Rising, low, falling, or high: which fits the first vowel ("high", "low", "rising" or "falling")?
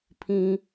high